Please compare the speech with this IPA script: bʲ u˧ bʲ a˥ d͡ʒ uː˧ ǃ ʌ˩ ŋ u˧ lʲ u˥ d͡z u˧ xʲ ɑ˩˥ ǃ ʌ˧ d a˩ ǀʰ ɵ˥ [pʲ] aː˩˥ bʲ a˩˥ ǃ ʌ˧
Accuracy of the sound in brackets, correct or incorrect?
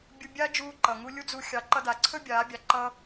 incorrect